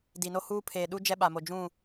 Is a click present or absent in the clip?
absent